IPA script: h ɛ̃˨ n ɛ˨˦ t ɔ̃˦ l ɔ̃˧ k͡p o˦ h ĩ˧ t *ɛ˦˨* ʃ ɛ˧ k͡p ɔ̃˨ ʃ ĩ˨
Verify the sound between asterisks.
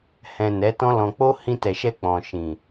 incorrect: ɛ˨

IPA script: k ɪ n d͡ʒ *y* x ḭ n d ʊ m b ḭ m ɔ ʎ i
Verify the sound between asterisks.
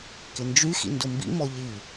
correct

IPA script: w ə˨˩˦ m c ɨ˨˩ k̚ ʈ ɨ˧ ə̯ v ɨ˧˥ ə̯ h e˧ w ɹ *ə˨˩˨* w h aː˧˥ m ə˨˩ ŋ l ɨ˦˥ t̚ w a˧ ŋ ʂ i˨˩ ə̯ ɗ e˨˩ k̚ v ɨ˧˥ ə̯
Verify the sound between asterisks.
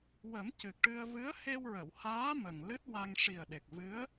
correct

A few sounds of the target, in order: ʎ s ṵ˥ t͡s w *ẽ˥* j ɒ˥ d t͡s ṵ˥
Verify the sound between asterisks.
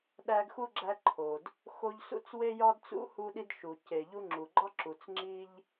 incorrect: e˥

